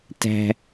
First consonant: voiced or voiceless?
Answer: voiceless